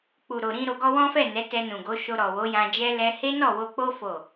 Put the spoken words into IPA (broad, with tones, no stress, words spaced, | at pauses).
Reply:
k͡pu˨ɾo˨ɾĩ˧ ɾo˨ɡɔ˧ wɔ̃˦fɛ˦˨ nɛ˨˦tɛ˧nũ˨ɡo˨˦ ʃo˧ɾɔ˨wo˨˦jã˧ d͡ʒɛ˦lɛ˦ he˦nɔ˦˨wo˧k͡po˦ fo˦˨